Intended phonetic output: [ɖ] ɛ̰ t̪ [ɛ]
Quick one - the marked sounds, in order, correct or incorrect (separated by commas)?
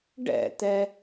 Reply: correct, correct